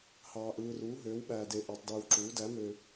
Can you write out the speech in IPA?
hɑː˨ʔɯː˨ ruː˩˥ɦøː˩˥wɓæː˨de˨ ʔæ˨tˤdɯː˨wǁuː˩˥ dæ˩˥ møː˨

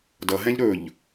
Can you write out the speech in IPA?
dʌ ɦɛ̃ʎɾɵʎ

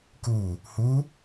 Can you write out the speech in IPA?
ku | hu

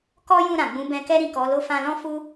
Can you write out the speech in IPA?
kɔ˦jũ˦˨ ɾã˨ɡ͡bũ˨˦ bɛ̃˧kɛ˦ ɾĩ˦˨kɔ˨˦lo˦ fã˧lɔ̃˦ fu˦

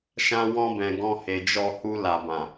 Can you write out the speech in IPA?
ʃã˧wɔ̃˧bɛ̃˨ ɡɔ̃˧he˨d͡ʒɔ˧hu˧ la˨bã˨

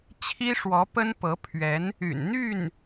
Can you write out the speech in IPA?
t͡ɕʰi˥ʂwɔ˧˥ pə˥npɤ˧˥pʰɥɛ˧˥n | y̰˨˩n n̪y˥˩n

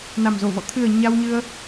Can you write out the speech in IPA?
na˨˩mzo˧˩vɔ̰˧˨ t̪ʰɨ˨˩ə̯ ɲa˧w ɲɨ˧ə̯

